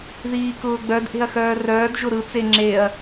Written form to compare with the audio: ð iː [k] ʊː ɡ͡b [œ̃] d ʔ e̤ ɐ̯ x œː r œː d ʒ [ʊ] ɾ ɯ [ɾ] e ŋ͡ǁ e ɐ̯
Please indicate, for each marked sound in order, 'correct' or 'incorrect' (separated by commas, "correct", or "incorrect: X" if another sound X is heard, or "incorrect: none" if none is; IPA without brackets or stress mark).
correct, incorrect: œ, correct, incorrect: t͡s